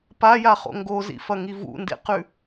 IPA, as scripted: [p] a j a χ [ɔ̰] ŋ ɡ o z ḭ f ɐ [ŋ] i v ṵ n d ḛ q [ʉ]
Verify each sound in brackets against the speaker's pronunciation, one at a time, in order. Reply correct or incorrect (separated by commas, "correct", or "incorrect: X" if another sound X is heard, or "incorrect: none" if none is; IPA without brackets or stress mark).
correct, incorrect: o̰, correct, correct